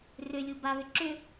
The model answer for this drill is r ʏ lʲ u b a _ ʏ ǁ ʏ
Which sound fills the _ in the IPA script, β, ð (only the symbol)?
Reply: β